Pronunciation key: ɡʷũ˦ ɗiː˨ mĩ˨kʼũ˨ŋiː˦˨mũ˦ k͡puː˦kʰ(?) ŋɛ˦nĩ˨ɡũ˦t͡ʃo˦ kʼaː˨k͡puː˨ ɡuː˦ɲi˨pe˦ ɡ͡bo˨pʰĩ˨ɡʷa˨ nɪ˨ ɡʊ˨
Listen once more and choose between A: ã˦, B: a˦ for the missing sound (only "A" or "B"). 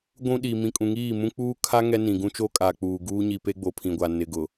B